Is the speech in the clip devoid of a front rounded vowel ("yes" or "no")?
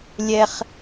yes